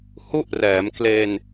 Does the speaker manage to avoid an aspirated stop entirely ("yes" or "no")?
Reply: yes